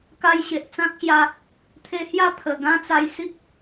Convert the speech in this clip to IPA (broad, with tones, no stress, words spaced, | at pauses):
ka˧jɕe˨ʔt͡sã˦k̚ɕja˧ | t̪ʰe˧hja˦ pʰə˨˩ ɡã˦t͡sa˧jsi˦k̚